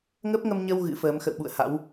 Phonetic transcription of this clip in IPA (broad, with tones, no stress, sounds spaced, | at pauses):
ŋ ə˦˥ p̚ ŋ ə˧ m ɲ ə˧ w ɣ ɨ̰˧˥ f əː˨˦ m x ə̰˧˨ w ɓ ṵ˧˨ ə̯ h a̰˧˥ w